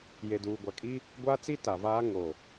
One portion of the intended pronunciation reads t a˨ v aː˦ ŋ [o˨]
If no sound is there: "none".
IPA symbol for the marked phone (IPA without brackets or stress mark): o˨